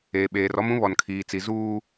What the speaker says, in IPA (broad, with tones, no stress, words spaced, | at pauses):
eː˨ɓeː˨rɔ˦m ũ˦βɔ˨nkʰiː˨t͡si˨ zuː˦